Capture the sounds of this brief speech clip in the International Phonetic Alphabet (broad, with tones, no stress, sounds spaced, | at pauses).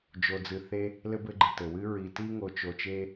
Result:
d͡ʒ o˨ d͡z ɨ˨ θ e˦ | l ɘ˥ b ɘ˦ ɡ͡ǃ ɨ˩ t ɘ˩ w ɨ˥ ɹ i˨ t i˥ ŋ o˨ t͡ʃ o˨ t͡ʃ e˦